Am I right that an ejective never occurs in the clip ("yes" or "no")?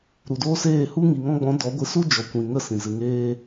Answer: yes